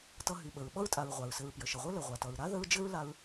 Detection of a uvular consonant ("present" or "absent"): present